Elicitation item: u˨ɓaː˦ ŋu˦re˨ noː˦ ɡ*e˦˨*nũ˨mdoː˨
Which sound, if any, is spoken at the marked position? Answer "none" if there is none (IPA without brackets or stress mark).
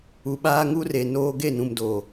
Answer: e˦˨